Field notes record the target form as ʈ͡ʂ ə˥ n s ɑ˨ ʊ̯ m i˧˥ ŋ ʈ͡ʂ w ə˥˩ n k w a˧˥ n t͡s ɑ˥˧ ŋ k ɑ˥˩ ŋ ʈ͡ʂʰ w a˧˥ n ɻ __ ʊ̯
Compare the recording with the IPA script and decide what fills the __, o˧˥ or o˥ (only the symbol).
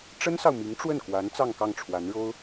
o˥